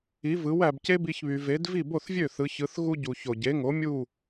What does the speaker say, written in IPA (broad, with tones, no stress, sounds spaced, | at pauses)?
i˩˥ v ɯ˩˥ w æ˩ b c e˥ b i˧ ç β y˩ v e˩˥ d v i˥˩ b o˥˩ θ vʲ ø˥˩ θ ɯ˩˥ ç ɯ˩˥ θ ɣ u˥ ɟ u˩ ç o˩ ɟ e˩˥ ŋ o˩˥ mʲ u˥˩